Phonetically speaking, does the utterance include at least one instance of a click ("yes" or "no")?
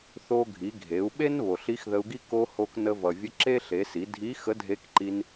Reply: yes